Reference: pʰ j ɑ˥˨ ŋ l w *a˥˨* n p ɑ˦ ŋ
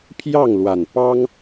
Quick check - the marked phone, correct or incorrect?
incorrect: a˨˩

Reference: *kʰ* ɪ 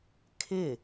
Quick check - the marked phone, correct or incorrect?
correct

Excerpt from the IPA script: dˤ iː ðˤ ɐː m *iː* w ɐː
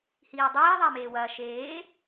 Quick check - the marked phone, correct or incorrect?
incorrect: eː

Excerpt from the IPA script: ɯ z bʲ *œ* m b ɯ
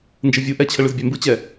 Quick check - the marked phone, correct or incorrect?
incorrect: ɛ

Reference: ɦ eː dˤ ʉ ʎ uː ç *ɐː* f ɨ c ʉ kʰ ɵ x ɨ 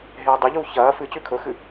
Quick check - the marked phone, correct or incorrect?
correct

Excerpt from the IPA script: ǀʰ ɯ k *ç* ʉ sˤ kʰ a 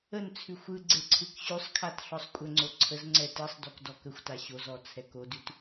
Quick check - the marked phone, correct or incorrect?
incorrect: ɕ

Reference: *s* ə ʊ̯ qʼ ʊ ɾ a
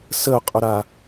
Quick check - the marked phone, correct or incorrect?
correct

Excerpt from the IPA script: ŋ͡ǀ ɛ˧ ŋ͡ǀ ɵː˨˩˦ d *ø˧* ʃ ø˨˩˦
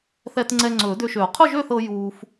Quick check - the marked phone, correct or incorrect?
correct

